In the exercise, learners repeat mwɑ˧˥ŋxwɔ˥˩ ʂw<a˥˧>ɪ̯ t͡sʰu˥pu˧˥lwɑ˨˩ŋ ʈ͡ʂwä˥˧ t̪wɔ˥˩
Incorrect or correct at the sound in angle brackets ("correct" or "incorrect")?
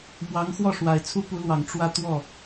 incorrect